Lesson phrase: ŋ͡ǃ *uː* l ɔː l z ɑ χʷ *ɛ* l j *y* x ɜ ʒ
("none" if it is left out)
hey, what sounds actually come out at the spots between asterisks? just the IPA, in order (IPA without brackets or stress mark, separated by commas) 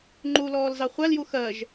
u, æ, u